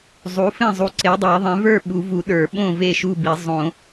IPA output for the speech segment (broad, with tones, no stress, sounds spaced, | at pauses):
zˤ u˩˥ f ẽ˥˩ zˤ u˩˥ ǀ e˩˥ dˤ e˨˩˦ ðˤ ẽ˩˥ v ə˞˥˩ ɓ u˨˩˦ v u˨˩˦ ɗ ə˞˨˩˦ ɓ õ˥˩ v e˥˩ ʃ u˥˩ b i˨˩˦ zˤ õ˨˩˦